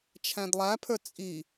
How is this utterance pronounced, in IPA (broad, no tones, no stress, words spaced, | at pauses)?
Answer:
t͡ʃʰæ̃dlˠæpʰə˞ t͡sʼi